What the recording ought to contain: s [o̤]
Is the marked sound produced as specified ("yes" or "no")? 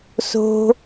yes